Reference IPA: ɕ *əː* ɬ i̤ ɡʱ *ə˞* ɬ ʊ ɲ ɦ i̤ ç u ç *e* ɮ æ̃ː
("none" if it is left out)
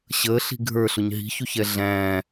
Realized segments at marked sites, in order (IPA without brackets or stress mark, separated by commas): əː, ə˞, ɛ